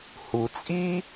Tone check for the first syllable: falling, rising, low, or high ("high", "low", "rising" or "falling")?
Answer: low